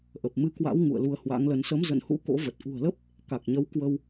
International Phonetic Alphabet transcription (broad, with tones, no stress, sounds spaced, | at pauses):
ʔ ə˨˩ p̚ m ɨ˧ k w a̰˧˥ w ŋ ṵ˧˨ ə̯ l u˨˦ ə̯ h w a̰˧˥ ŋ l ə˨˦ n s ə˨˦ m z ə̰˧˨ n h ṵ˧˥ k o̰˧˥ v ə˨˩ t̚ ʔ ṳ˨˩ ə̯ l ə˦˥ p̚ | k a˨˩ k̚ ɲ ə˨˦ w k w ə˧ w